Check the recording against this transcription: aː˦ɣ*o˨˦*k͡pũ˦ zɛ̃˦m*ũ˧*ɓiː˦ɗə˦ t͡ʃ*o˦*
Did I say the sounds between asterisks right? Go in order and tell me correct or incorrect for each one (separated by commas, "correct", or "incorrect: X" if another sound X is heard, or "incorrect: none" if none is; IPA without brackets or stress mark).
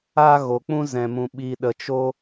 incorrect: o˧, incorrect: ũ˦, correct